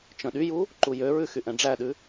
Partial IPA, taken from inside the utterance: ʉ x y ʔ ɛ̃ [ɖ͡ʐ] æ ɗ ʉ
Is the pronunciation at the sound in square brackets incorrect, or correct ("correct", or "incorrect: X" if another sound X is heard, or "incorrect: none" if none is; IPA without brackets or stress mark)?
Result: correct